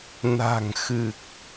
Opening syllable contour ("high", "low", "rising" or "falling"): low